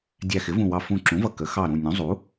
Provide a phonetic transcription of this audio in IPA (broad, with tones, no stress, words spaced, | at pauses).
dʲæ˧˩xɪ˩˥vũ˧˩wɑ˧˩ fũ˧˩ǁũ˩˥vʌ˧˩ kə˩˥ xɑ˧˩ɾũ˧˩ nʲũ˩˥zˤu˩˥